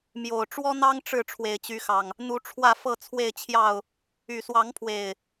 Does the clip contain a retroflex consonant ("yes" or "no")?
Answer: yes